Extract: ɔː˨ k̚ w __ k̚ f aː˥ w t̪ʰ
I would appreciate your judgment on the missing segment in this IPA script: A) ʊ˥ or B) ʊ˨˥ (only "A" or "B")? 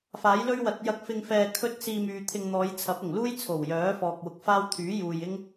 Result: B